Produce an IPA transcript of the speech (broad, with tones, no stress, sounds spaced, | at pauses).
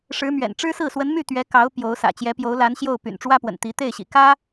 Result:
ʂ ɻ̩˧˥ m ɥ ɛ̰˨˩ n ʈ͡ʂ ɻ̩˥ s ɹ̩˥˩ s w ə˧˥ n m y˥˩ t̪ ɥ ɛ˧˥ k ɑ˧˥ ʊ̯ p j o˧˥ ʊ̯ s ä̰˨˩ t͡ɕ j ɛ˧˥ p j o˧˥ ʊ̯ l a˧˥ n ɕ j o˥˩ ʊ̯ p y̰˨˩ n ʈ͡ʂ w ä˥ p w ə̰˨˩ n t̪ i˧˥ t̪ e˥˩ ɪ̯ ɕ ḭ˨˩ k ä˥